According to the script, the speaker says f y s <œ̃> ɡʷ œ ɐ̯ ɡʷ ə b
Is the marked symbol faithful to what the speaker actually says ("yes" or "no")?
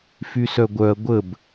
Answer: no